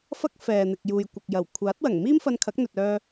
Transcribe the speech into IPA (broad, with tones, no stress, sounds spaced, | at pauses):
f ɐ˥ k̚ f ɛː˨ n̪ ɪ˨ k̚ j uː˨ j kʷ ɐ˨ k̚ j ɐ˨˩ w kʷʰ aː˨˥ t̚ w ɐ˨˩ ŋ m iː˥ m f ɐ˧ n kʰ ɐ˨˥ k̚ n̪ ɵ˨ t̚ œː˧